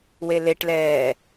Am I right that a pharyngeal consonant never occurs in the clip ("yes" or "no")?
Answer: yes